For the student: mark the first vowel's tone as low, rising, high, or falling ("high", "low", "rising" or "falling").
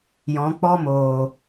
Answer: rising